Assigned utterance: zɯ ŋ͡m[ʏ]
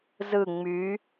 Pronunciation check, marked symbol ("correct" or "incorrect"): incorrect